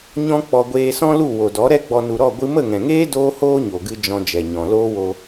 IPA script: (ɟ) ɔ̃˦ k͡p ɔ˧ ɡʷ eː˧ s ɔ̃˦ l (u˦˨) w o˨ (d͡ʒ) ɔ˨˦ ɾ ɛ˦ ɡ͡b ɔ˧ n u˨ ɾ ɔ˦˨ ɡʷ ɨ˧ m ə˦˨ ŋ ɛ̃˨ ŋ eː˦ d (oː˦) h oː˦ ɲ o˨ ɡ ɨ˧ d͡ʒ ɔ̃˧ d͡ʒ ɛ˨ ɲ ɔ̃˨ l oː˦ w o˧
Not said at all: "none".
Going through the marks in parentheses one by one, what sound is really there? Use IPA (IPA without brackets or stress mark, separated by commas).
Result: ɲ, u˦˨, d, oː˦